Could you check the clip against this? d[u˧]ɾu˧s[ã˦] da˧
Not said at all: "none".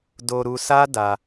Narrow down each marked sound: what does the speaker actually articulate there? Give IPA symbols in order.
o˧, a˦

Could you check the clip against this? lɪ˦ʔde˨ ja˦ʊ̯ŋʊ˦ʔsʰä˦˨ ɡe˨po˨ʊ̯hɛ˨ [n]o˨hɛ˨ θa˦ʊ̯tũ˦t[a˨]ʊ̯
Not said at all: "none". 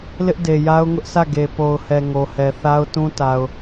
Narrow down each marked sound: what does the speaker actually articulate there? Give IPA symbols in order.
ŋ, a˨

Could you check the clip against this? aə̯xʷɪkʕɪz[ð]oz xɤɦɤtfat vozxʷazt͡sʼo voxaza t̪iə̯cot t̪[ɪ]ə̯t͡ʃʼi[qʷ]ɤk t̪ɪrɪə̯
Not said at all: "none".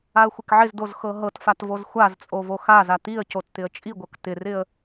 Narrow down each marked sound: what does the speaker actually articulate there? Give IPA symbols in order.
d, ɪ, ɡʷ

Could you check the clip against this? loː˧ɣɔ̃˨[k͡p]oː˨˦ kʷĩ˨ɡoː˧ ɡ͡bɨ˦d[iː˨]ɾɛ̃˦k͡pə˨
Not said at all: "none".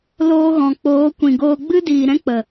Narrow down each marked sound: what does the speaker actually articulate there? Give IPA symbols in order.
k͡p, iː˨

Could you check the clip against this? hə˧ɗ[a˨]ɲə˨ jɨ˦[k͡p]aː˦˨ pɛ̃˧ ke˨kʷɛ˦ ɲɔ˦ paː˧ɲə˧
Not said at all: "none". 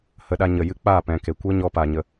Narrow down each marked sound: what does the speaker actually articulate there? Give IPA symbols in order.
a˧, k͡p

